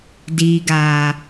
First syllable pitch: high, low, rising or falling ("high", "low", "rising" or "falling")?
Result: low